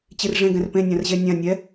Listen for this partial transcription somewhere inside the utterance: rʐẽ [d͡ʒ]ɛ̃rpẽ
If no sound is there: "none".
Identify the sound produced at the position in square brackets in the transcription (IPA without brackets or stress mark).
ɡ